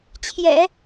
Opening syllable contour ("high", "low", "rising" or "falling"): low